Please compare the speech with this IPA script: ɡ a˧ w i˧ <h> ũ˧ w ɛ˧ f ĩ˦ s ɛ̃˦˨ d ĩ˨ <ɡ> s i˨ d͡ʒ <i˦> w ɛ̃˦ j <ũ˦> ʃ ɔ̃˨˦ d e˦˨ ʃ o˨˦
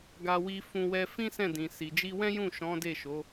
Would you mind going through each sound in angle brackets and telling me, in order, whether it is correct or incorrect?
incorrect, incorrect, incorrect, incorrect

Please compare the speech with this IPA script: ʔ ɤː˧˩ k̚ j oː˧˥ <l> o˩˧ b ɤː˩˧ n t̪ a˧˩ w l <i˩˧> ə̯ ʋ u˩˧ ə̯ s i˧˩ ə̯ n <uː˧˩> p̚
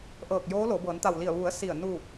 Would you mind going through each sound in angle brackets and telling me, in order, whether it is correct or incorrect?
correct, incorrect, correct

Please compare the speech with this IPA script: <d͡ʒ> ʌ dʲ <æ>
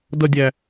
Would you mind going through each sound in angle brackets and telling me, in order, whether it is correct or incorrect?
incorrect, correct

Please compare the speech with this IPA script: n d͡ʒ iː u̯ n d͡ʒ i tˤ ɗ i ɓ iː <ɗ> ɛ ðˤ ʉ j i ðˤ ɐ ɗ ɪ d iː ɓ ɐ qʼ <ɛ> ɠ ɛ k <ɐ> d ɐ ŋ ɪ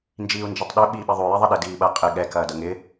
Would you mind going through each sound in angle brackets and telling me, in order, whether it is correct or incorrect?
incorrect, incorrect, incorrect

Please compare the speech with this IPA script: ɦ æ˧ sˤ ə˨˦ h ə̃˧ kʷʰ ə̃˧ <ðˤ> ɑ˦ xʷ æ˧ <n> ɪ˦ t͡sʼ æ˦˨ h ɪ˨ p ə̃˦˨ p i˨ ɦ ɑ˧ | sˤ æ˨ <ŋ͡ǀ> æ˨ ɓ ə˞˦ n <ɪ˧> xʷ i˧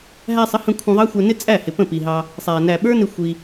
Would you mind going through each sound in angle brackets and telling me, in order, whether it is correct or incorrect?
correct, correct, incorrect, correct

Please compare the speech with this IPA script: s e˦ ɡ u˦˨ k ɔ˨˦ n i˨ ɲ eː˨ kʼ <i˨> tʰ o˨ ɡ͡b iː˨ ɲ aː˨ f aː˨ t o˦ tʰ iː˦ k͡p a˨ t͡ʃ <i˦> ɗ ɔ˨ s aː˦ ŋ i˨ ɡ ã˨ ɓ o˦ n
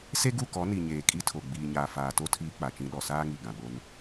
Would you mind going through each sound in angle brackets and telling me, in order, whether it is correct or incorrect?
incorrect, incorrect

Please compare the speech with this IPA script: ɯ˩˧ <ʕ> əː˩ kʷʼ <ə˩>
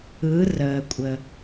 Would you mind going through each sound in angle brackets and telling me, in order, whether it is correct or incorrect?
incorrect, correct

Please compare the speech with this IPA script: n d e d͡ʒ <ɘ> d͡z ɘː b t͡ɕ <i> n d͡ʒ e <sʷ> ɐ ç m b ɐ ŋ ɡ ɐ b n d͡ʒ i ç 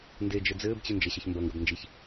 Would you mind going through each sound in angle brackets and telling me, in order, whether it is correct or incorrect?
correct, incorrect, incorrect

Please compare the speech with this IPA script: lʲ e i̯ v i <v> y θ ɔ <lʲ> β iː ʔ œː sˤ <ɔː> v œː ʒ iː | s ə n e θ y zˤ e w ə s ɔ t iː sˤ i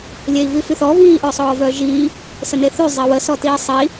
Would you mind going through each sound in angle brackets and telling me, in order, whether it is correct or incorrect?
incorrect, incorrect, correct

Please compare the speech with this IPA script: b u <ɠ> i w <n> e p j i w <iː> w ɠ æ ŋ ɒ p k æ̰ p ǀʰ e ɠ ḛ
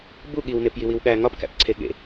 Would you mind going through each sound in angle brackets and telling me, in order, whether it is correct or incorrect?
correct, correct, incorrect

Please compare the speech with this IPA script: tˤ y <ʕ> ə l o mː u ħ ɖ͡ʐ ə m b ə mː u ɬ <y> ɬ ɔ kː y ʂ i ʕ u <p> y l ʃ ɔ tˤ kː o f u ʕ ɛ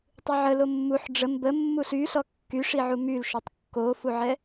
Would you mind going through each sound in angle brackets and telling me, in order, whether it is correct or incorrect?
correct, correct, incorrect

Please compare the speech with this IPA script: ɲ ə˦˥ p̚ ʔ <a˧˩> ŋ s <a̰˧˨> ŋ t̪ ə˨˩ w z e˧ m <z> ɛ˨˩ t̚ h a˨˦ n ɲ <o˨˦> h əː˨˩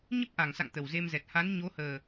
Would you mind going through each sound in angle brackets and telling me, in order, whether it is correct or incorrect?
correct, correct, correct, correct

